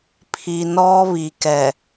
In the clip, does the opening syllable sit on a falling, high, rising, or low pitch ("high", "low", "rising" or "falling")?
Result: low